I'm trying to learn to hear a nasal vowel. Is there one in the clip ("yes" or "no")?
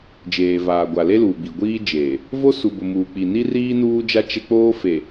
no